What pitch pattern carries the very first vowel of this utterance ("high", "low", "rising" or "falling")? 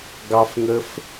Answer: high